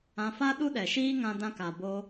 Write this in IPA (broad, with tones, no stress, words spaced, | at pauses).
ã˧fa˦ ɗu˦ɗɛ˨ʃiː˦ŋã˧ dã˧ka˨bo˧